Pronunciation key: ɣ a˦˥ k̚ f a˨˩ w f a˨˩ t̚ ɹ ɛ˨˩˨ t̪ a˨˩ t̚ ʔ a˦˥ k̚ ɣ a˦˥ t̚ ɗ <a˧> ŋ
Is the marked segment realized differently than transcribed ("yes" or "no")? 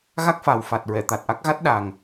yes